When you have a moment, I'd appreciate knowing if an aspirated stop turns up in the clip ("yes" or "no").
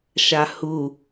no